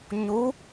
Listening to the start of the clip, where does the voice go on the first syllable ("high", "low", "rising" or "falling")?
rising